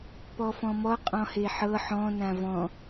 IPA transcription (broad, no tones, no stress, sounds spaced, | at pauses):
p ɔ f ɔ̃ m ɔ qʼ ɔ̃ h e ħ ɤ ħ ɔ̃ n ã v ɔ̃